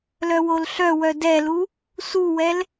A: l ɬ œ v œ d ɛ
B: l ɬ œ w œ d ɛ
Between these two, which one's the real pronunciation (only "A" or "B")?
B